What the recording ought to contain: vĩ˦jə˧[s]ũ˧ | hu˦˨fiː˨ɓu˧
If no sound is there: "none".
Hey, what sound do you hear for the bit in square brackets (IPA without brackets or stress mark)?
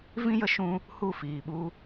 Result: ʃ